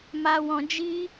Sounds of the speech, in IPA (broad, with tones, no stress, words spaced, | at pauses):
ma˧wɔ̃˧d͡ʒi˦